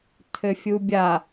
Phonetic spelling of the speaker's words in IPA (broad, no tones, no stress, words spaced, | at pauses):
tʰɘfʲubʲa